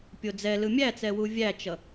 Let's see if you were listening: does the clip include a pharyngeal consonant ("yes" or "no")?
no